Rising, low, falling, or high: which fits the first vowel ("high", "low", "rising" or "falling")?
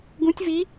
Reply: rising